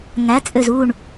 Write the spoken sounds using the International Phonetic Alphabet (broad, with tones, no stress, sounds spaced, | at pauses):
ŋ æ˩˥ t͡sʼ ø˧˩ z u˧˩ ɳ